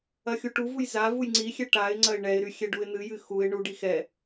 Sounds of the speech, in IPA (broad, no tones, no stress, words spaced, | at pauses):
ɐxʲuʈuvuj za vujŋ͡ǀixʲɛ ʈaɪ̯ŋ͡ǀɐɪ̯ ɳɛɪ̯ɾy xʲɛɖuɪ̯n̪ɨjɨ xuɪ̯ ɳuɖi xɛ